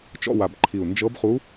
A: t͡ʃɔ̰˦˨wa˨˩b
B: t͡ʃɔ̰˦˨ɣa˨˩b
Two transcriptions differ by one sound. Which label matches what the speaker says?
A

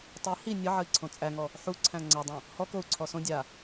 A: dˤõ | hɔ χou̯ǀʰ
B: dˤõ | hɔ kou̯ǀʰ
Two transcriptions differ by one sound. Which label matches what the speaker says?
B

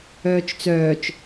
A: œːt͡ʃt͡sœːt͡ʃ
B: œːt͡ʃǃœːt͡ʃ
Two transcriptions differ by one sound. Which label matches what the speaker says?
A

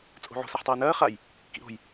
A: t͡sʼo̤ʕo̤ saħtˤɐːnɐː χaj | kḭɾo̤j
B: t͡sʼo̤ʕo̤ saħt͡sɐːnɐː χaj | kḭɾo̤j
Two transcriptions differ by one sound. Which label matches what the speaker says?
A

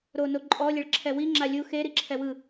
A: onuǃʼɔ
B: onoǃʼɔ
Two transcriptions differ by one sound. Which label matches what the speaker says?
B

